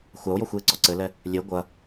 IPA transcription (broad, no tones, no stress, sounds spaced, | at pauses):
xʷ a o̯ j ɔ xʷ j e ǀ ɔ ǀ ɘ l ɛ | lʲ e ɡʷ ɐ